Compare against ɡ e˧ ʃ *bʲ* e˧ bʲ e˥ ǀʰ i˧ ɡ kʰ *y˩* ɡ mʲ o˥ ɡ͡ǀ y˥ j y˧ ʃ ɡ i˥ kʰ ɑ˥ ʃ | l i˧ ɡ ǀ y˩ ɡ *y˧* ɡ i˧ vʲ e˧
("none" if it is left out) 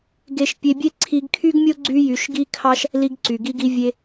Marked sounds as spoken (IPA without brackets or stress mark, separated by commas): pʲ, y˥, i˧